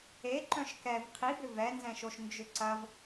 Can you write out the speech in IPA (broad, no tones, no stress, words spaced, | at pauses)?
e ǃœ̃ʃkɛv qʰibʏ vɛnzɛ̃ʃoʃ nd͡ʒʏǀɐv